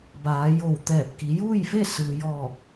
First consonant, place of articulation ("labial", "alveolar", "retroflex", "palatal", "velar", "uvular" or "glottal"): labial